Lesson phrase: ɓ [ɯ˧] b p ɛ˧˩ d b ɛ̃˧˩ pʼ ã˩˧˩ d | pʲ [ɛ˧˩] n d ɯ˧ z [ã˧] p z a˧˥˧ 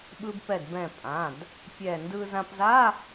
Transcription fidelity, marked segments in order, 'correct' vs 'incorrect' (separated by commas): correct, correct, correct